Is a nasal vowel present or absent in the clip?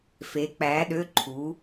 absent